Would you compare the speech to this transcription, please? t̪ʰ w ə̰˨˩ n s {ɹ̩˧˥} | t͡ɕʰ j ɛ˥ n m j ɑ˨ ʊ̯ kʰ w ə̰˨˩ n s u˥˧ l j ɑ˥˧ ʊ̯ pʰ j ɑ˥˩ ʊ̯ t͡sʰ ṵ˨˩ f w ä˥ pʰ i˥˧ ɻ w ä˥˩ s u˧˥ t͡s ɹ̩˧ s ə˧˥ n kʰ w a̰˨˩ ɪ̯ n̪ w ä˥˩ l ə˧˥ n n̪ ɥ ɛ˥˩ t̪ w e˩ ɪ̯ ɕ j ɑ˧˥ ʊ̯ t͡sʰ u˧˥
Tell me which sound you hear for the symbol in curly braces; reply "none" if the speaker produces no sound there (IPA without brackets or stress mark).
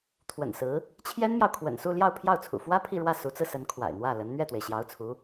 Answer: ɹ̩˧˥